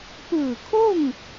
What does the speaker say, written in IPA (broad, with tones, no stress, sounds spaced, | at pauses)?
p ɯː˧˩ kʰ o˥˨ ŋ